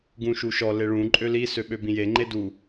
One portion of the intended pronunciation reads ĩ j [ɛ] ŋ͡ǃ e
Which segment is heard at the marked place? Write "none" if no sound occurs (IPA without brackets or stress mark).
e